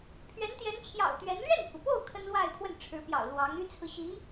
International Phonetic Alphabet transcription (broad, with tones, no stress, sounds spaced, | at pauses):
pʰ ɥ ɛ˧˥ n t̪ j ɛ˧˥ n t͡ɕʰ j ɑ̰˨˩ ʊ̯ t̪ ɥ ɛ˧˥ n l ɥ ɛ˥˩ n pʰ u˩ p o˥˩ ʊ̯ kʰ ə˥ n l w a˥˧ ɪ̯ pʰ w ə˥˩ n ʈ͡ʂʰ ɻ̩˧˥ p j ɑ̰˨˩ ʊ̯ l w ɑ˧˥ ŋ y˥ t͡sʰ ɹ̩˨ ɕ i˧˥